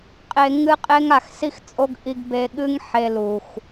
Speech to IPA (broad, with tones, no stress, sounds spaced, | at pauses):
qʼ e˧ ŋ ɨ˦ qʼ e˦ ŋ a˦˨ x s i˦ x t͡sʼ o˦ ɡ ʔ i˧ ɡ b e˧ ɠ ɨ˦ ŋ ħ e˧ l u˨ x